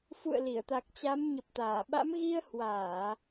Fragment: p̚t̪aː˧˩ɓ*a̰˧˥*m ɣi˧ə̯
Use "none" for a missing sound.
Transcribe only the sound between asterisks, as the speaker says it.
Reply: a̰˧˥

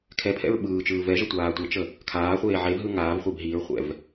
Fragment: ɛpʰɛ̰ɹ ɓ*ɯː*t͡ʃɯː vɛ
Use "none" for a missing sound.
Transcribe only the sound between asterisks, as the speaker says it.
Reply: ɯː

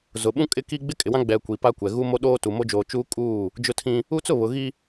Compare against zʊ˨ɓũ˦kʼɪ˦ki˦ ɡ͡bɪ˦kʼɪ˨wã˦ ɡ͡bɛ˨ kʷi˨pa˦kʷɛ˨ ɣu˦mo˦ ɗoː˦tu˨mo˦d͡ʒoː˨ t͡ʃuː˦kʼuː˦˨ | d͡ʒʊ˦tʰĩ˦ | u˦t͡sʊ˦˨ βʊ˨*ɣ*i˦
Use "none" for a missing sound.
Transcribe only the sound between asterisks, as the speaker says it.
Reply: ɣ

